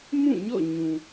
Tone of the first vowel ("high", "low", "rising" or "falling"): falling